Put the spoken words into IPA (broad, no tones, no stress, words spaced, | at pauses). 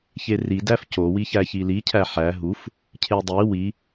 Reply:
çeri dæfco wiçæçili cʰæħæ ɦuf | cʰedˤi wi